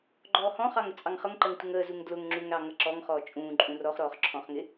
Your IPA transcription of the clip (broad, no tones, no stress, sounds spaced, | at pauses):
ɡ͡ǃ ɔː h ɔ̃ χ ɑ ŋ ʊ t͡sʼ ɑ ŋ χ ʌ ŋ ǃ ɜ ŋ tʷ ə ŋ əː z u ŋ d l ʊ ŋ ŋ͡ǁ u ŋ ɾ ɑ ŋ ʌ ǁ ɔ ŋ χ ɔː t͡ʃʼ ũː ǃʼ ũ r ɔ χ ɾ ɔː χ ǁʰ ɔ̃ χ ŋ ɪ